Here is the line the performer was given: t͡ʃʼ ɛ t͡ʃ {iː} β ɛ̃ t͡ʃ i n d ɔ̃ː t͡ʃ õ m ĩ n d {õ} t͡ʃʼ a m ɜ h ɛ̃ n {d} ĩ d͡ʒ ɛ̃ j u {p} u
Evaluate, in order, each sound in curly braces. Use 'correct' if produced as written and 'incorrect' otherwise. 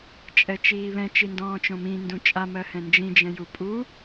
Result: correct, incorrect: ũ, incorrect: d͡ʒ, incorrect: pʼ

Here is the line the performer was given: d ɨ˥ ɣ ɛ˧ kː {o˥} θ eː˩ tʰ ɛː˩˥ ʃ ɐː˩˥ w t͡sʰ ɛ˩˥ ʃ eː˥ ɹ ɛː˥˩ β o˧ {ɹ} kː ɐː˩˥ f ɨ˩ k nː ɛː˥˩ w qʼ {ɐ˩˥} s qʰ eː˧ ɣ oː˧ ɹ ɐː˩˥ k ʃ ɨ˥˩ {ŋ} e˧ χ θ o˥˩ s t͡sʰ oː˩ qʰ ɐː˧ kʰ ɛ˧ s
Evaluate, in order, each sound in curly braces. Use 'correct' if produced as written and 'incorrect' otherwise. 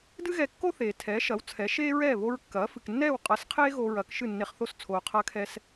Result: correct, correct, correct, incorrect: nː

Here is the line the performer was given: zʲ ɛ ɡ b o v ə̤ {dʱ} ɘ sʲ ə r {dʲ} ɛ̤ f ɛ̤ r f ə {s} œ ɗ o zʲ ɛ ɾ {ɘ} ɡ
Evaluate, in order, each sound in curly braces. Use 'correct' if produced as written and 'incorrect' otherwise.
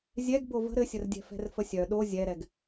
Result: incorrect: ɾ, correct, incorrect: sʲ, incorrect: ɛ

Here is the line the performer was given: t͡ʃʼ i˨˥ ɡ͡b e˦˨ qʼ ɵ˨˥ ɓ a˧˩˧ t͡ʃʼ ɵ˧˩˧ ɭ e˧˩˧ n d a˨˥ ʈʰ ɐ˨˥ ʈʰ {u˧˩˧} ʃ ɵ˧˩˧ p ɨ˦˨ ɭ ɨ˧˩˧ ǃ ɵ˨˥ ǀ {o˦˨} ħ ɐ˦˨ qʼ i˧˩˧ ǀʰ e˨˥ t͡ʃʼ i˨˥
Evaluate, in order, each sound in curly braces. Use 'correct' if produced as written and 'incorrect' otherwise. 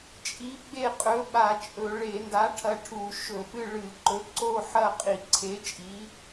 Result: correct, correct

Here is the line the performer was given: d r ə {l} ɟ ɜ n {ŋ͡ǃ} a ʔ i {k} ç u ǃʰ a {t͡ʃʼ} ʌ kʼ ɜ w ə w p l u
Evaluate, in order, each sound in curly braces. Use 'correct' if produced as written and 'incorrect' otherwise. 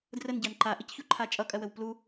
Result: incorrect: n, incorrect: ǃ, incorrect: c, correct

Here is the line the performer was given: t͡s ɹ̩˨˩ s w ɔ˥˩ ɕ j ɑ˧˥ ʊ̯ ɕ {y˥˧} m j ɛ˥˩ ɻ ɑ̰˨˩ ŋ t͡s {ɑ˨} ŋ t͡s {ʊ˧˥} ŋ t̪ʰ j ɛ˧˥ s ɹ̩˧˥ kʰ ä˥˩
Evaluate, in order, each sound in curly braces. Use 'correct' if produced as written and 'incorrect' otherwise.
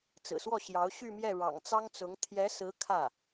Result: correct, incorrect: ɑ˥, correct

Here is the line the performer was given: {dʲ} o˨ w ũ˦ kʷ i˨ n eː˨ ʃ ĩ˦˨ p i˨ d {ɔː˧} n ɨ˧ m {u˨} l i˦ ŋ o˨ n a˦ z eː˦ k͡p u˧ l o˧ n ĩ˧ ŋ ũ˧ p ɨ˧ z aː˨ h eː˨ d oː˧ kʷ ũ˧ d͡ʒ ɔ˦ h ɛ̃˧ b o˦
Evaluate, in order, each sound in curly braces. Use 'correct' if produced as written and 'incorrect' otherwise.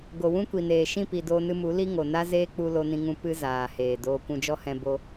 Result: incorrect: ɡ, incorrect: oː˧, incorrect: u˨˦

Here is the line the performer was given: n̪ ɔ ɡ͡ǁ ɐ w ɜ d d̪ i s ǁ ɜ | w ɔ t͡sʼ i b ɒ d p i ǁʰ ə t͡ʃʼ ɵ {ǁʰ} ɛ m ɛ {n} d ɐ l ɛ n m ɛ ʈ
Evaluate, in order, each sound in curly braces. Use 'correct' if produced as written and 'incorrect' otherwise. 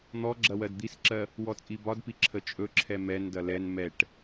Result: correct, correct

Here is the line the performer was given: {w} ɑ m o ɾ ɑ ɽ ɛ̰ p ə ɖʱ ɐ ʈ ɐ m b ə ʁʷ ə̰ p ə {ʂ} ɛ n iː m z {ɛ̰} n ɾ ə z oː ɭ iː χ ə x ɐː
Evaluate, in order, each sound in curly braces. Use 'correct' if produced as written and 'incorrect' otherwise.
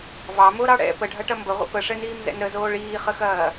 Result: incorrect: v, correct, correct

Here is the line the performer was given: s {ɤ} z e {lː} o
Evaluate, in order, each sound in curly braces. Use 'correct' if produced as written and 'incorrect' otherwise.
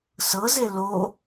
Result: correct, incorrect: l

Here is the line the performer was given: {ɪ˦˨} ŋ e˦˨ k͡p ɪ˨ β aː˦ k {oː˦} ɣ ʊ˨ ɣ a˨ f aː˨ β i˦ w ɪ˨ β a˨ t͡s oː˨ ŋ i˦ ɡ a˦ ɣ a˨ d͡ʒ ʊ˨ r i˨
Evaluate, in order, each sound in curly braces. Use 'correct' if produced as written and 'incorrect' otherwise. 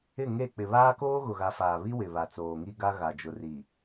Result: correct, correct

